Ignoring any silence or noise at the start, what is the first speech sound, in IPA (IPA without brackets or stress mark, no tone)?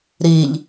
ɾ